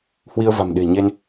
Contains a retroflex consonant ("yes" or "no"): no